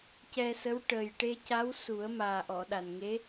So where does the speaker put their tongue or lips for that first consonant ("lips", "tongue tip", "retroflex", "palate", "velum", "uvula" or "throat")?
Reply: palate